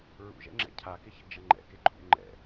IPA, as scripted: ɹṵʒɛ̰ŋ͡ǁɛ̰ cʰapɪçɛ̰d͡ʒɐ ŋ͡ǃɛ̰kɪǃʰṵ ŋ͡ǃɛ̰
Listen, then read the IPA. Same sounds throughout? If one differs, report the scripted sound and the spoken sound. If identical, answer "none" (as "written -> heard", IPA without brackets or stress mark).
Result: p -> k